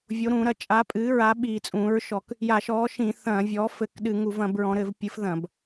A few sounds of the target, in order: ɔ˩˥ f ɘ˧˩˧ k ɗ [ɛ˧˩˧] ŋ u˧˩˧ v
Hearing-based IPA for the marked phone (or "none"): ɨ˧˩˧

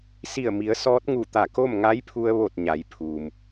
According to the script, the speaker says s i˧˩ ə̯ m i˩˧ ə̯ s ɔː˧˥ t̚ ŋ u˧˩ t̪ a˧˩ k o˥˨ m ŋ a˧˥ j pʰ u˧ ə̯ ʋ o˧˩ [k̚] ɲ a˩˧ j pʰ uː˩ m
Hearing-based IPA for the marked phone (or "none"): t̚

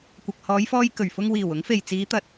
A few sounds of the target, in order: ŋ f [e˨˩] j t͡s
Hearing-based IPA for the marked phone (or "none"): e˨˩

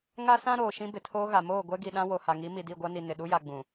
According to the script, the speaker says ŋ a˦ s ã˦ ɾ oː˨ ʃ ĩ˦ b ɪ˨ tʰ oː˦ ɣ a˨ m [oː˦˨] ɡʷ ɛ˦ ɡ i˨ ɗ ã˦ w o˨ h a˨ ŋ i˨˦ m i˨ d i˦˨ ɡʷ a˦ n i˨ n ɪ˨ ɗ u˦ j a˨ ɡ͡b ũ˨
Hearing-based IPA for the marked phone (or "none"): oː˦˨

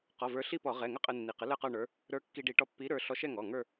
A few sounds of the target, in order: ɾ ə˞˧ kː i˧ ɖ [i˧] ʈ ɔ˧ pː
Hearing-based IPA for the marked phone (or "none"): i˧˩˧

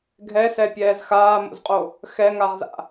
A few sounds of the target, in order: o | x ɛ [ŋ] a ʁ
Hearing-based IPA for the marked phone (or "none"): ŋ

